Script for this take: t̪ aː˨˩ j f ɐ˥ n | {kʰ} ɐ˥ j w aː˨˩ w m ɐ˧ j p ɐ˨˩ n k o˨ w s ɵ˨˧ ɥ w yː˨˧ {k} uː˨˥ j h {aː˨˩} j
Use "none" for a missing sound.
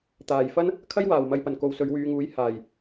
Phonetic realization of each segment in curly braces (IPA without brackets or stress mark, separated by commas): kʰ, ŋ, aː˨˩